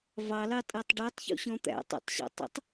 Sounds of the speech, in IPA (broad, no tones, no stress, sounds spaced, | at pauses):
v ɑ l ɑ tʼ æ tˤ ɖ ə˞ tˤ ç ṵ ɕ ɔ̃ t̪ æ̰ tˤ æ̰ tˤ ɕ ɑ̰ tˤ ə̰ tˤ